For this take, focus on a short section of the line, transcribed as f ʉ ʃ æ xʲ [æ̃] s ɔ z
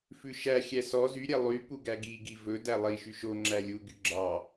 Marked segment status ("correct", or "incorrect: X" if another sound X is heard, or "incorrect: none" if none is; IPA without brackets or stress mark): incorrect: æ